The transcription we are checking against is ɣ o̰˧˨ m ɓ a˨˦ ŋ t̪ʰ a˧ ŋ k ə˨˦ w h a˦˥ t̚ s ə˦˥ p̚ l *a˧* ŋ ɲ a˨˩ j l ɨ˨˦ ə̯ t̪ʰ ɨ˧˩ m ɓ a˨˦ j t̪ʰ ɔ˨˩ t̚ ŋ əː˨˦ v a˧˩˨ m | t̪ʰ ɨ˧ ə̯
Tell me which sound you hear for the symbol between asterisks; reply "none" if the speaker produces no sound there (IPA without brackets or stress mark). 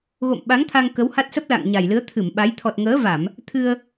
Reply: a̰˧˨